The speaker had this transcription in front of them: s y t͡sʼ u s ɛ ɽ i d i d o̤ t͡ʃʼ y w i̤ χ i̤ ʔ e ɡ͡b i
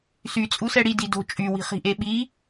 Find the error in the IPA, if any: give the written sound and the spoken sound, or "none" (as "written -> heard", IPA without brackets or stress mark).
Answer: ɡ͡b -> ɓ